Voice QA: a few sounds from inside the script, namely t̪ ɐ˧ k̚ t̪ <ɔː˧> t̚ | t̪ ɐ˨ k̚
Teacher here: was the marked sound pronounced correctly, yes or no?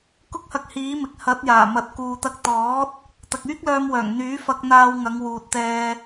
no